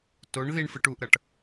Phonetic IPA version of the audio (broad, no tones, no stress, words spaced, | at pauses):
toɳ ðiɳ fɯʈuʔɾʌʈ